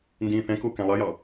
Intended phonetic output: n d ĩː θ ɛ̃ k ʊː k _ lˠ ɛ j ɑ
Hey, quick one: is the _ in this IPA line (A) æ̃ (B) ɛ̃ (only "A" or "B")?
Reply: A